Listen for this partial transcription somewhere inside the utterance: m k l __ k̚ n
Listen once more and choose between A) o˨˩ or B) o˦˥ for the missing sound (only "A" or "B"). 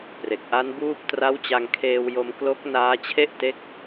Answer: B